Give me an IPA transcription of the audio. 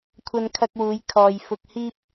kʷʰ ɐ˧ n kʰ ɐ˧ k̚ w uː˨˧ j kʰ ɔː˨ j f ʊ˧ k̚ h iː˥ p̚

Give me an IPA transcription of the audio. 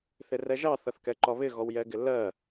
θ ɪ r ɛ ʒ ɑ θ ʌ θ k ɛ ǃ ɒ β ɪ ɣ ɔ w j ɛ ɡ ɪ lː ɜ

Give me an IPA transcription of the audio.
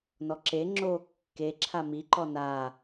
n ɔ ǁ e ŋ͡ǁ oː kː e ǁʰ a m i ǃ ɔ n aː

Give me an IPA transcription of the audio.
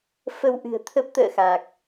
f ə˧ w ʔ ɨ̤˨˩ ə̯ t̪ʰ ə˦˥ p̚ t̪ ə̰ː˧˨ x a˨˩ k̚

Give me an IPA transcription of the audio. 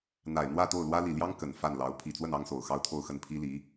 n̪ a˨˩ ɪ̯ n̪ w ä˥˧ t̪ o˥˩ ʊ̯ l w ä˥ l i˨˩ l j ɑ˥ ŋ k ə˨˩ n f a˥˩ n l ɑ˧˥ ʊ̯ pʰ i˨˩ t͡s w ə˥˩ n ɑ˥ ŋ s o˨˩ ʊ̯ x ɑ˥ ʊ̯ t̪ʰ o˥˧ ʊ̯ x ə˥˩ n pʰ i˥ l i˧˥

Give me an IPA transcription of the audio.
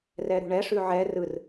r ɛ ɾ ṳ ɳ ɛ ʂ ʉ ʕ ɛ r ɯ r

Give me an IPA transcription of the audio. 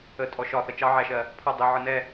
ə tʼ ɔ ʃ ɒ θ ə t͡ʃ ɑ ʕ æ ʃ ɜ | pʰ ʌ dˤ i ʕ ə n ɛ

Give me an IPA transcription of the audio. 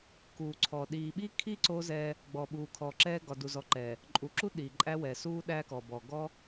k uː˨ ǀʰ ɔ˨ ɗ iː˨ ɓ i˦ kʰ i˦ ǀ o˦ z ɛː˦ | ɡ͡b ɔ˨ ɓ uː˨ kʰ ɔ˨ ǁ ɛː˦ ɡ ɒ˨ d u˨ z ɔ˨ ǃ ɛː˨ | ǃʼ u˨ ǁ u˦ ɗ iː˨ ǃʼ æ˦ w ɛ˨ s uː˦ ɗ æ˦ k ɔ˨ b ɔ˨ ɡ ɔ˦

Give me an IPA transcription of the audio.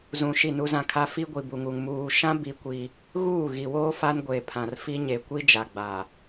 z ũ˨ ʃ i˦˨ n u˦ z ã˦ kʰ a˦ f i˦ ɡʷ i˨ b u˨ ŋ u˨ ŋ m uː˨ ʃ ã˦ b i˦ kʷ i˦ | ɣ uː˦˨ ɣ i˨ w oː˦ f a˦ n ɡʷ e˨ pʰ ã˨ r f i˦ ɲ e˨ kʷ i˦ d͡ʒ a˨ ɡ͡b a˨

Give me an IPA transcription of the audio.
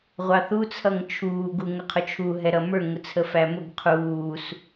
ʁʷ ɑ θ u t͡sʰ ʌ ŋ t͡ʃʰ uː ɡ u ŋ ə qʰ ʊ t͡ʃʰ u ɦ ɛ ɾ ʌ m ə˞ ŋ ʊ t͡sʰ ə f æ m ʊ ɡ qʰ uː s

